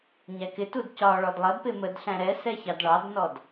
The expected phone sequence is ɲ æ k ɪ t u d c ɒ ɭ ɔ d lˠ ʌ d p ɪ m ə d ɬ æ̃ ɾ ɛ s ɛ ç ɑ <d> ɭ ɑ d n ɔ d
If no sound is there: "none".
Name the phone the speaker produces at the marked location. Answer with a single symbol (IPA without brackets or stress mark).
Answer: d